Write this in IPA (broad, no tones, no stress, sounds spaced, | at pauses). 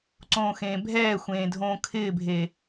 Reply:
ǀ õː x ẽː bʱ ɛː xʷ ẽː dʱ õː kʰ ɪː bʱ e